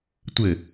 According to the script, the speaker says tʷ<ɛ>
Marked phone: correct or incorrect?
incorrect: ɘ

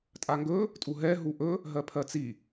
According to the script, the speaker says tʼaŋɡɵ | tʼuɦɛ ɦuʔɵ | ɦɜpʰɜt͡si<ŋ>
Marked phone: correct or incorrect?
incorrect: none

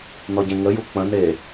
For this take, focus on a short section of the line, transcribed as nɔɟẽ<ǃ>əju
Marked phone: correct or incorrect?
incorrect: ŋ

